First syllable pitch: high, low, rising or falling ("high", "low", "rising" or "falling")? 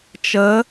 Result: rising